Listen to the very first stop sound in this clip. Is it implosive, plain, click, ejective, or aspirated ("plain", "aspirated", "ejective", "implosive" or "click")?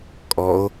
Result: ejective